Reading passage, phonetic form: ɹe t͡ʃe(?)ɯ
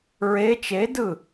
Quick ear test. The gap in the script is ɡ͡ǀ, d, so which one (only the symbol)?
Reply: d